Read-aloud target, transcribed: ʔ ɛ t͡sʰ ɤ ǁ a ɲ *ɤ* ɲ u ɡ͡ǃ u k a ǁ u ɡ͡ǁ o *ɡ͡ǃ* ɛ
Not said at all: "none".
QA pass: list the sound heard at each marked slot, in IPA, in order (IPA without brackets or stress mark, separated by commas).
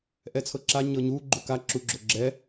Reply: ɤ, ɡ͡ǁ